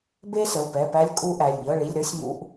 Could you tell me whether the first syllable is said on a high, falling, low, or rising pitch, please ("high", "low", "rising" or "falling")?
high